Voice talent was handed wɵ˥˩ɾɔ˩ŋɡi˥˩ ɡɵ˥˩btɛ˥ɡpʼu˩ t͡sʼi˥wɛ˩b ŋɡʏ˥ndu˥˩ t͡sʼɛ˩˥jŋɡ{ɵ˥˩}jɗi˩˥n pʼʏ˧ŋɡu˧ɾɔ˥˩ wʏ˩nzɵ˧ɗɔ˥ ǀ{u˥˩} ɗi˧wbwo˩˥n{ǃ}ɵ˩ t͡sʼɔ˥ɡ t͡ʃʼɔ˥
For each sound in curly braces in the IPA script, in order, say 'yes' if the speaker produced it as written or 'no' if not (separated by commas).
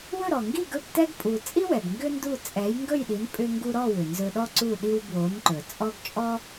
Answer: yes, yes, yes